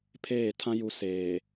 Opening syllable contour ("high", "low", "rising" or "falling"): falling